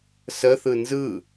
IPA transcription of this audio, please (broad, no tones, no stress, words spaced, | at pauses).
səθɯ nzɯ